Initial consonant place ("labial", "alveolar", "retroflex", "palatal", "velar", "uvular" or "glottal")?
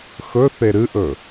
velar